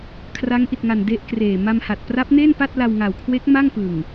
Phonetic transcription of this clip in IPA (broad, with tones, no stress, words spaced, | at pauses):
kʰra˦˥ŋʔi˨˩t̚ŋa˨˩n de˦˥ʔkreː˨˩ ma˧mha˨˩t̚ pra˦˥p̚ne˥˩n pa˥˩t̚la˧wŋa˨˩w kʰwe˦˥k̚ ma˥˩ŋpɯ˨˩ŋ